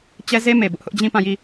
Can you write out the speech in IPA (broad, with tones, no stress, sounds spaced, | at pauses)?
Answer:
t͡ɕ ɛ˦ z e˦ m e˨ b ʊ˦ ʔ h ʊ˦ ʔ d͡ʑ ĩ˦˨ p ã˦˨ j i˦˨